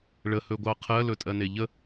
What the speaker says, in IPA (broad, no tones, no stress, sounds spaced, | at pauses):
ɭ ə h ɵ ɡʷ ɑ qʰ ɜ l ɵ tʼ ɜ n e ʎ ə